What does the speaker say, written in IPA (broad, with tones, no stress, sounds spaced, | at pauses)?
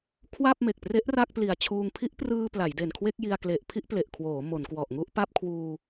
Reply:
kʰ w a˥˩ p̚ m e˨˩ k̚ p r e˦˥ ʔ r a˥˩ k̚ p l i˨˩ a̯ t͡ɕʰ uː˧ ŋ pʰ i˦˥ ʔ p r ɯː˧ p l a˩˦ j d e˨˩ n kʰ w e˥˩ k̚ j i˧ a̯ k l e˨˩ ʔ pʰ i˥˩ ʔ p l e˨˩ ʔ kʰ w oː˩˦ m o˩˦ n k w ɔ˨˩ ʔ ŋ u˥˩ ʔ p a˥˩ p̚ kʰ w uː˧